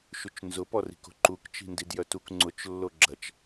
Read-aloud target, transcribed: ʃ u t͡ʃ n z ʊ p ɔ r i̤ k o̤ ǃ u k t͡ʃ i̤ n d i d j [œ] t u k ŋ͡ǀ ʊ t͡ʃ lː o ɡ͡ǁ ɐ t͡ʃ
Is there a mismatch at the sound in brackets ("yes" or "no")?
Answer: no